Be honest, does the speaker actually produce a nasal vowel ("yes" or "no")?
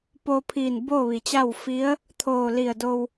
no